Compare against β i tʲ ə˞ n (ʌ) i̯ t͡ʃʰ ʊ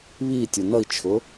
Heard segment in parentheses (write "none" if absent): ʌ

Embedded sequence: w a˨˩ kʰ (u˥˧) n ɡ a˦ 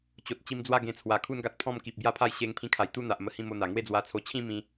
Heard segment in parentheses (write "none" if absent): u˦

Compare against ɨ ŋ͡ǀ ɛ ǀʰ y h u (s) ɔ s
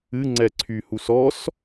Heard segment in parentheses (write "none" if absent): s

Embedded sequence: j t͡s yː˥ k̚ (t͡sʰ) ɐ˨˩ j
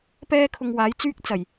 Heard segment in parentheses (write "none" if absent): t͡s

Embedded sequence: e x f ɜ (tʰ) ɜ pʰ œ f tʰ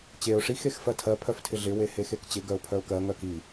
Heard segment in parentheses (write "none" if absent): tʰ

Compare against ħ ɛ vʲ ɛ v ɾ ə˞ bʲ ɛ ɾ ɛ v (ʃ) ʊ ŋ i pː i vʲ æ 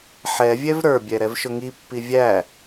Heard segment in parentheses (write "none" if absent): ʃ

